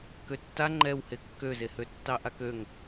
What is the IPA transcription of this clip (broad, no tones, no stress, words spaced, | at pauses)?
køtːa ŋ͡ǃɛwhe kːøzehø tːɑʔakøŋ